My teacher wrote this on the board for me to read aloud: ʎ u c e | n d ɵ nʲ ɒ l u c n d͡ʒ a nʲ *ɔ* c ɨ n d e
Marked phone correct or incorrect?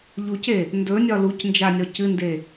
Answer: correct